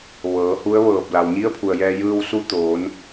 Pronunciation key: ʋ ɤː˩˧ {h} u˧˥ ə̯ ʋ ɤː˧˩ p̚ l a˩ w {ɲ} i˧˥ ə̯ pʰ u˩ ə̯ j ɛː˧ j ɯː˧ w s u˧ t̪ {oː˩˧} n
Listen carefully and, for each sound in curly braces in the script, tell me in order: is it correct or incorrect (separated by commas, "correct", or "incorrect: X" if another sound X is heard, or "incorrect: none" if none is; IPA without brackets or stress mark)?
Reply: correct, correct, correct